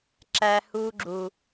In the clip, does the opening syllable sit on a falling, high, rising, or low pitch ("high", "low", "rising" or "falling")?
high